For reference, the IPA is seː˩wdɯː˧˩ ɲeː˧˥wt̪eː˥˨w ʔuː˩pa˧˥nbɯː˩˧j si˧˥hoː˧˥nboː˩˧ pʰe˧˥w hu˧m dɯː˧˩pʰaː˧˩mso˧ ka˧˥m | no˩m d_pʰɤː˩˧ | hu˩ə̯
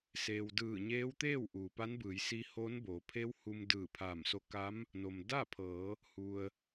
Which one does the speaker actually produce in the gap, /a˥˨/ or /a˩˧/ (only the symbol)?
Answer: a˥˨